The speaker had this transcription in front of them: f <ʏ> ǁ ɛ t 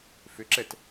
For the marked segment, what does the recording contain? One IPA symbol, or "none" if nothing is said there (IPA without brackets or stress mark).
ʏ